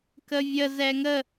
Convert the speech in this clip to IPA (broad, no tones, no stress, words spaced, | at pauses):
kəvʲə zɛŋə